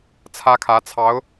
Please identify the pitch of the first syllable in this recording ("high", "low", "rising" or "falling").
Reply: high